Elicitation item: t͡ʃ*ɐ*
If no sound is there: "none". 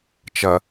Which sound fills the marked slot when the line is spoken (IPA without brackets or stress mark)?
ɐ